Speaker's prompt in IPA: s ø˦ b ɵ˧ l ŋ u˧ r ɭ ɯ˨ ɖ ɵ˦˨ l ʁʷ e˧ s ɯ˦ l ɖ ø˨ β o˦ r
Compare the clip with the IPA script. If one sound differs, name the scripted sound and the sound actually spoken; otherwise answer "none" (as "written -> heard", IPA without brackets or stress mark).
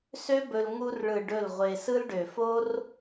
β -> f